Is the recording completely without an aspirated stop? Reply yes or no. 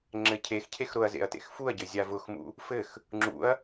no